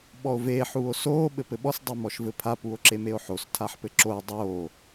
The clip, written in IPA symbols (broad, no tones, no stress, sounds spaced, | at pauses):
ɓ ɔ o̯ v eː ħ uː o̯ s oː ɓ ɘ p ɘ ɓ ɔ s dˤ i m ɔ ʃ v ɘ pʰ a p u o̯ ǁ e m e o̯ ħ o s tʰ a ħ p ɘ ǁ o e̯ dˤ oː